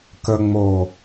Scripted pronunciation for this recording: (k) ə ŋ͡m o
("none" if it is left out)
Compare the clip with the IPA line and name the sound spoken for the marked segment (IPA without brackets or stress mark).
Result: k